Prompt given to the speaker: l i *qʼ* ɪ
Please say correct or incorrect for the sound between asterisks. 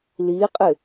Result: correct